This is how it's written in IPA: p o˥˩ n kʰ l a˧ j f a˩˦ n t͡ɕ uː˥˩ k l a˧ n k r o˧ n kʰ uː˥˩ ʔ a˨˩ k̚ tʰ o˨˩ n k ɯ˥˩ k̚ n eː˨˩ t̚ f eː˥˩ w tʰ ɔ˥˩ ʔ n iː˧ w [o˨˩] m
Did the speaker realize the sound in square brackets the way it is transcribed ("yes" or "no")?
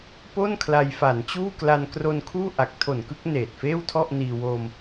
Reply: no